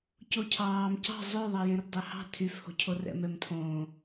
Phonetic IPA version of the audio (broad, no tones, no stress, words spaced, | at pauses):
cocʰɑːm cɑ̤ zˤøðˤɑjẽr dˤɛhɑ̤ tʰyfho̤cʰo rɛ̰mɛmtʰõː